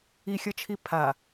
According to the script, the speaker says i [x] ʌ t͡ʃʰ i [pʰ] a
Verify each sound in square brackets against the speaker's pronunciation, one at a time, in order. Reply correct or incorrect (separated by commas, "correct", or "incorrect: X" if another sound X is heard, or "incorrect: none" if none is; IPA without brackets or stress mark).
incorrect: xʲ, correct